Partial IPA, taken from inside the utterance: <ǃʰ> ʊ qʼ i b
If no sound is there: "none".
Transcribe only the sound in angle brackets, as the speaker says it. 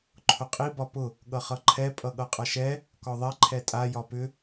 ǃʰ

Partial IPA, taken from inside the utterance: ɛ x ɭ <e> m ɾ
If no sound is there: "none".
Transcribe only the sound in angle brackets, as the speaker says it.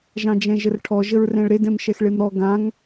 e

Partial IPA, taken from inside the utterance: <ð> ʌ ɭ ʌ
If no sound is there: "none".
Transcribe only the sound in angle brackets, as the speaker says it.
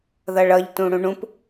ð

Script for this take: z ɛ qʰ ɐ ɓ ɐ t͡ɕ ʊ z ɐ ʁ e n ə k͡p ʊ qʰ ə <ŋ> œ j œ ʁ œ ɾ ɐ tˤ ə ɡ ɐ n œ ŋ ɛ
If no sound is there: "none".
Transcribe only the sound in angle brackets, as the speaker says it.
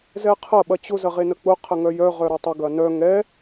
ŋ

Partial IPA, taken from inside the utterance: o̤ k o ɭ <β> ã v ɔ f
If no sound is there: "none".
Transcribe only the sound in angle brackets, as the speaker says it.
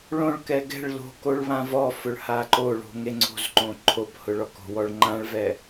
β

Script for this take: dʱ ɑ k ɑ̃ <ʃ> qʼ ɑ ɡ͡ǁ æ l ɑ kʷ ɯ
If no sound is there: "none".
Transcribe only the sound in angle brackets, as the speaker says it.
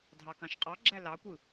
ʃ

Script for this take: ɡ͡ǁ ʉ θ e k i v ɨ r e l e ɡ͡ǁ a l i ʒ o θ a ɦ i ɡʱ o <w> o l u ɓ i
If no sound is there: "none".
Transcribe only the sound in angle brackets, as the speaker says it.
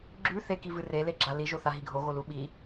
ɣ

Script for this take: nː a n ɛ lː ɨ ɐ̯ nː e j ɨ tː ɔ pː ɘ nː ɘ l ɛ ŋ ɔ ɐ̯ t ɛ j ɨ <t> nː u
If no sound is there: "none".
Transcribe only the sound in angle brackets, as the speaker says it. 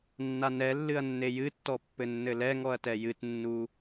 t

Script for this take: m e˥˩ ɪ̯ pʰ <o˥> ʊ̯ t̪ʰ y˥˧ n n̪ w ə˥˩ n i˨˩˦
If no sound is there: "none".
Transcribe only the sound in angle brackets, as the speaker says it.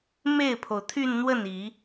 o˩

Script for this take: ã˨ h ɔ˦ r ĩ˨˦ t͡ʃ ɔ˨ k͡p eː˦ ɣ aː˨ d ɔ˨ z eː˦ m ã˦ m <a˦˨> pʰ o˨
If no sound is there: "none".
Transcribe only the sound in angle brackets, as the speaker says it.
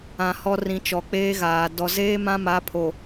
a˨˦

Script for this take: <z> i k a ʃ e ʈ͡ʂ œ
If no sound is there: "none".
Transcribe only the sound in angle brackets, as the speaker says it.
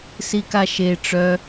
s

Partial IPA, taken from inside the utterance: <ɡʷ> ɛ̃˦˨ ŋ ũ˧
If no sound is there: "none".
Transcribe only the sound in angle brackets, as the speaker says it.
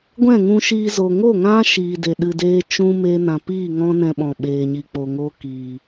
ɡʷ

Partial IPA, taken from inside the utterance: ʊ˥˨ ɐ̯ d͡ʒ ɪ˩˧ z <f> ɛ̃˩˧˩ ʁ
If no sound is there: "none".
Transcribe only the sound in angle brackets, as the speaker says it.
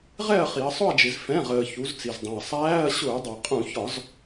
f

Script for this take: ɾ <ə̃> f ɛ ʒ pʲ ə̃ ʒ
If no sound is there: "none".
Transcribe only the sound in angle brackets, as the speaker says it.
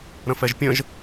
ə̃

